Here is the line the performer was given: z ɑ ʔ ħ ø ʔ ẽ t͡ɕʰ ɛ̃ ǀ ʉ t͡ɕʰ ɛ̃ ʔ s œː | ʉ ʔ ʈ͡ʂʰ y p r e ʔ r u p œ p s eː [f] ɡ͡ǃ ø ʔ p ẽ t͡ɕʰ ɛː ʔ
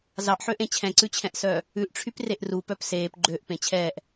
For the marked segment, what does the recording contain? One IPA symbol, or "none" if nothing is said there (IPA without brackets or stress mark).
p